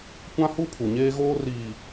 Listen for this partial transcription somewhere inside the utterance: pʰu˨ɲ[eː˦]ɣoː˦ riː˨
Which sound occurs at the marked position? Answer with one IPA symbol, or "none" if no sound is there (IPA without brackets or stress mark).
eː˦